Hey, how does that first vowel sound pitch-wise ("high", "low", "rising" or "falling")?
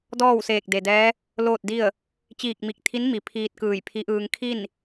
falling